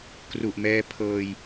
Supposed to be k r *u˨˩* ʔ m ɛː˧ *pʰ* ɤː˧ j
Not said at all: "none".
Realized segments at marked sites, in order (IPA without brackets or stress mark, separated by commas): u˨˩, pʰ